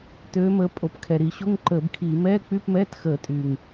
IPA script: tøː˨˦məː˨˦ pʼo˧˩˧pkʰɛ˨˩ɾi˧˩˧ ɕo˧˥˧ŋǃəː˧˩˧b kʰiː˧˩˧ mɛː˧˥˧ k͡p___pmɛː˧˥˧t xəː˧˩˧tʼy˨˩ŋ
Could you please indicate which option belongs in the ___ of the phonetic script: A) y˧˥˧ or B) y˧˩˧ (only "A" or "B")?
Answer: A